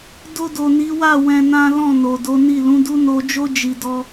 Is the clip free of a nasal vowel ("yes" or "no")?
no